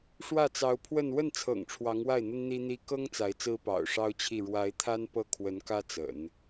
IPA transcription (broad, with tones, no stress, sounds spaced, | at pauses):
ʂ w ä˥˩ t͡s ɑ˧˥ ʊ̯ pʰ w ə˥˧ n w ə˥˩ n t͡sʰ ɤ̰˨˩ ŋ ʈ͡ʂʰ w ɑ˧˥ ŋ w a˥˩ ɪ̯ n̪ ə˥ n n̪ i˥ n̪ i˥ k ɤ˥ ŋ t͡s a˧˥ ɪ̯ t͡s ɹ̩˥ p ɑ̰˨˩ ʊ̯ ʂ ɑ˥ ʊ̯ t͡ɕʰ i˥˩ ɻ w a˧˥ ɪ̯ t̪ʰ a˥ n p ɤ˥˩ kʰ w ə˧˥ n k ä˥ t͡s ə̰˨˩˦ n